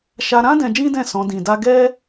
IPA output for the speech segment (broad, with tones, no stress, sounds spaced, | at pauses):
ʃ a˧ ɾ ã˦ d ɛ̃˧ d͡ʒ ĩ˦ d ɛ̃˦˨ s ɔ̃˨˦ d ĩ˧ d a˦ ɡ ɛ˦